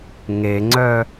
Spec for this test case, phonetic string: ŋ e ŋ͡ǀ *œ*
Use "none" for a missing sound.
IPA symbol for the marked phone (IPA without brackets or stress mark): œ